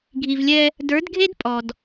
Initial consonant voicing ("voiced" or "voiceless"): voiced